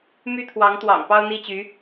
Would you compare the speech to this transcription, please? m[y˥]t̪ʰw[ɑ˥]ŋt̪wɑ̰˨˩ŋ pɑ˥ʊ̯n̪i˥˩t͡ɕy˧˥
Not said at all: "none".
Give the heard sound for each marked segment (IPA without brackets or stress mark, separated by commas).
y˥, ɑ˧˥